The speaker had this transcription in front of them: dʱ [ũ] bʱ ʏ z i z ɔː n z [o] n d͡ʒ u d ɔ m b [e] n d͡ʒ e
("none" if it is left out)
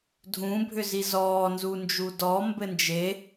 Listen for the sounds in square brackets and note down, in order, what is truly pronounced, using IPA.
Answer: ũ, u, ɘ

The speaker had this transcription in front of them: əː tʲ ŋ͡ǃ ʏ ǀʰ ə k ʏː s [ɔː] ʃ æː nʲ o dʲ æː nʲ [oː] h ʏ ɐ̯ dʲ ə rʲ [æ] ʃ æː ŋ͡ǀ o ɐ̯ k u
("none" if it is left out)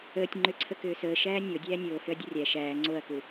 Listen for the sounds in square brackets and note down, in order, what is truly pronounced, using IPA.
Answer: əː, oː, æ

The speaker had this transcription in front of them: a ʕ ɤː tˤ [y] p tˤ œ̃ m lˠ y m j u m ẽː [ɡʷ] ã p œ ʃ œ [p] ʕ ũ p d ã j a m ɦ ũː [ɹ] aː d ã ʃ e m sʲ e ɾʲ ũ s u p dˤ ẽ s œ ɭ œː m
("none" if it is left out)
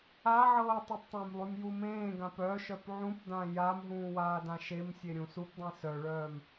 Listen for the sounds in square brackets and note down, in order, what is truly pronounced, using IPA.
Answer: e, ɡ, p, w

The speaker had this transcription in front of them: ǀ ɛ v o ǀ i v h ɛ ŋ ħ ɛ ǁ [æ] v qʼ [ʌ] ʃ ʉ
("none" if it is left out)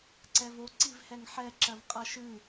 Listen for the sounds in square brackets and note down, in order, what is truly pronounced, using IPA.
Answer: ɜ, ʌ

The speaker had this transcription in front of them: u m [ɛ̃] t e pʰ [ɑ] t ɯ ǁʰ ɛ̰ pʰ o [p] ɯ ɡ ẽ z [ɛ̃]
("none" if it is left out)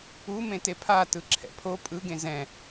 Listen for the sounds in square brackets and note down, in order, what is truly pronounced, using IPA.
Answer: ẽ, a, pʼ, ɛ̃

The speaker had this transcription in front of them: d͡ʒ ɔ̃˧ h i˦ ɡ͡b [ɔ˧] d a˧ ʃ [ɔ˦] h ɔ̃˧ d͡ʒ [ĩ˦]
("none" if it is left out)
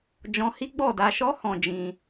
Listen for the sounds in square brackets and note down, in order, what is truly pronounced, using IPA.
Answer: ɔ˦˨, ɔ˦, ĩ˧

